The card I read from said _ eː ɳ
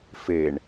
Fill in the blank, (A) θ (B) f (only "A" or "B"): B